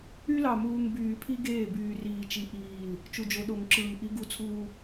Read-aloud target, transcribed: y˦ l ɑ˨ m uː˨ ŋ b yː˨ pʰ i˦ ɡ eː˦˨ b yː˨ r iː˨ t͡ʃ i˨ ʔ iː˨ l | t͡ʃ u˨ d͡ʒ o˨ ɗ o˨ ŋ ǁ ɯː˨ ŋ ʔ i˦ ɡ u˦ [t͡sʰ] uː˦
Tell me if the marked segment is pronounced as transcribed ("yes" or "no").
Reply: yes